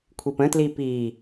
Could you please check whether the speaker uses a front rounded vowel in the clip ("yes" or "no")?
no